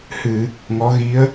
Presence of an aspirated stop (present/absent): absent